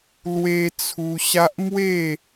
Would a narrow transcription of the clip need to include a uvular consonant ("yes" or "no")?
no